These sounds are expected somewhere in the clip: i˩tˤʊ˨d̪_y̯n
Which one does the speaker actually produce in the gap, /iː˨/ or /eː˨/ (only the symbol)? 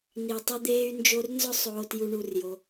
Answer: eː˨